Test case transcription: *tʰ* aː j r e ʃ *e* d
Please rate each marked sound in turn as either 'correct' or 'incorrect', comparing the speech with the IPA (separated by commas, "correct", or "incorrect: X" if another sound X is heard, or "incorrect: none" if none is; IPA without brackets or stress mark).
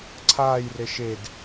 incorrect: ǀʰ, correct